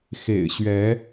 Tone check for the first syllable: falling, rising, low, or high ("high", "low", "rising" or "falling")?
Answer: low